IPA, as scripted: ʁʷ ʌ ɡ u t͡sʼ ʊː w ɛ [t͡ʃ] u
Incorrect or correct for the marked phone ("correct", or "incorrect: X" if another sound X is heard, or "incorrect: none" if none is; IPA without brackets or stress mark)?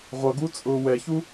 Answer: incorrect: ç